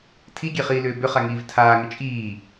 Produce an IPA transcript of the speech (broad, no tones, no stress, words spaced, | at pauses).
tʰiɡʲe χiːlʏːbʏχa ŋiːvtʰaːŋʏ t͡ʃʼiː